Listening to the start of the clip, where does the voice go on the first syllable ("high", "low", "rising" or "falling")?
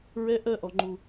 high